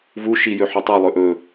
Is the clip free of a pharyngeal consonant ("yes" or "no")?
no